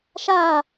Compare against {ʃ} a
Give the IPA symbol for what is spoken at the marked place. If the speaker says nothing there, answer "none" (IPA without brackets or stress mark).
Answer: ʃ